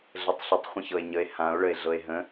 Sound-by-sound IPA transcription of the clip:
ɮ ə tˤ ɬ ə tˤ χʷ ə̃ ç ɤ e̯ ɲ ə e̯ h ã o̯ ɭ ə e̯ ɮ ɤ e̯ ɦ ə̃

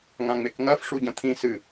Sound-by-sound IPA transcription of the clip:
ŋ ã ŋ͡m e k ŋ ɐ f ʂ u ɟ ɐ̃ t̪ʰ ĩ s ɨ

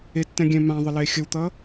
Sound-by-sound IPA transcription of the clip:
e tː ɛ̃ ɡʲ ɛ̃ m ã ðˤ ə l e xʲ ə w t̪ ʌ

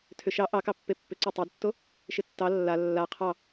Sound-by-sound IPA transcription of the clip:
tʰ ʏ ʃ ɑ ʔ ɑ k ɑ pː e pː ʏ ǀ ɑ tˤ æ d tː o | ʃ ɪ tː ɑ lː a lː a qʰ ɑ

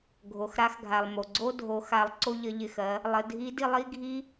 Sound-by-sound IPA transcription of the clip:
ɡʱ o˩ x ɾ a˧˥ x ɡʱ a˩ lˠ m o˩ ɡ͡ǀ o˥ dʱ o˩˧ x a˩˧ lˠ ǀ o˧ ʎ ə˩˧ ʎ ɪ˩ x ɜ˩˧ | lˠ ə˩˧ dʱ i˧˥ d i˧ lˠ i˥ ɡʱ i˥

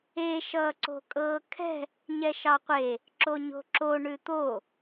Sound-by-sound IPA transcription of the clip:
e ʃ ʌː ǀ o̤ kʼ ɤː kʰ ɛ̤ | ɲ ɛ ʃ ɑ qʷ e | ǁ o ɲ o̤ ǁ o ɳ ʉ t̪ o

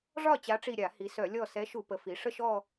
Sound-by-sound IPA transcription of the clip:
ʐ ɒ˥˩ t͡ɕ a˨˥ ʈ͡ʂ i˧˩ ɾʲ a˧˩˧ h i˩˧ s œ˧˩˧ lʲ ɔ˧˩ s ɛ˨˥ ʃ u˧˩˧ p ə˩˧ f i˩˧ ʂ ə˥˧ ʃ ɔ˥˧

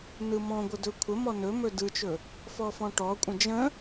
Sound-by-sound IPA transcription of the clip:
n ɯ m ɔ̃ ɡʷ ə d ɵ kʷʰ ə m ɔ n ɵ m ɵ d ɯ t͡ʃ ɵ | f ɔ f ɔ̃ ʈ ɔ kʷʼ ə̃ d͡ʒ ə̃

